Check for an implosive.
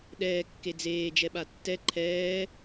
present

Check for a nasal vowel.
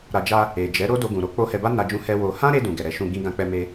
present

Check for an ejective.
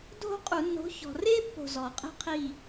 present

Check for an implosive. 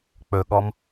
present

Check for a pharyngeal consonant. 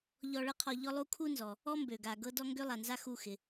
absent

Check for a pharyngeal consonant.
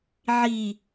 present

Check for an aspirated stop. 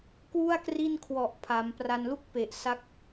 present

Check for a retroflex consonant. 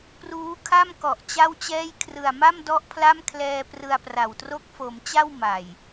absent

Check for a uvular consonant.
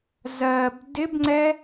absent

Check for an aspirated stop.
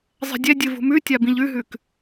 absent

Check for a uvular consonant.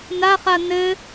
present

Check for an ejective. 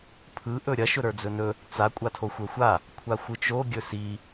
present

